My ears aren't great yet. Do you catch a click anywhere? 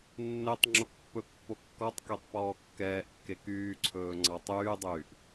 yes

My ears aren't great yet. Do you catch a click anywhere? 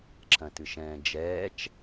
yes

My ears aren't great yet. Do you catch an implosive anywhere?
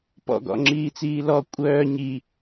no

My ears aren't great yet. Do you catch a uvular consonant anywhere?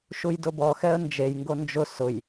no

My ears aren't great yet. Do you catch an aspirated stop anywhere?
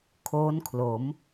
yes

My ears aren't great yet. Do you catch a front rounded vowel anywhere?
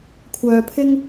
yes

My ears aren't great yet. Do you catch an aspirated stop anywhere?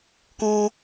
no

